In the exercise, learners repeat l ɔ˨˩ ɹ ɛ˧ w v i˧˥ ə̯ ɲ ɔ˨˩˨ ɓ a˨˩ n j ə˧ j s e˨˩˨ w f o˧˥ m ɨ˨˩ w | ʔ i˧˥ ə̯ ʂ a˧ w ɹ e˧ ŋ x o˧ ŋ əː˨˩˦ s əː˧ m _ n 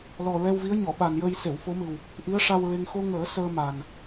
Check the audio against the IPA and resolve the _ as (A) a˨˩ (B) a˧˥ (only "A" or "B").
A